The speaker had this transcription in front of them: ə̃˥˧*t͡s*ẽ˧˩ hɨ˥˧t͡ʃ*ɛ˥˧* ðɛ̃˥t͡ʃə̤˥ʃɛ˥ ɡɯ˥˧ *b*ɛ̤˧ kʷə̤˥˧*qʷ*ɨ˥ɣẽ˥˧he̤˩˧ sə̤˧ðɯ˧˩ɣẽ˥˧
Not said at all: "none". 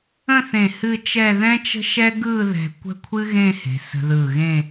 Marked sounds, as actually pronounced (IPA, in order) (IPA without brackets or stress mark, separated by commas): θ, ɛ˥˧, ð, kʷʰ